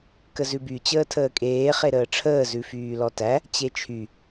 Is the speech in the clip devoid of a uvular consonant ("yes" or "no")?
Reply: no